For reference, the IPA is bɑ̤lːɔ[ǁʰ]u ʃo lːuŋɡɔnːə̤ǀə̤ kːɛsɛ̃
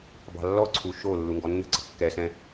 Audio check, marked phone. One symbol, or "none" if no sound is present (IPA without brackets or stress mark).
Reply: ǀʰ